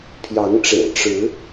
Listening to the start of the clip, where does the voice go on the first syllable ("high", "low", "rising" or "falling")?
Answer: rising